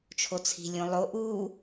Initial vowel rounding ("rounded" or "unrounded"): rounded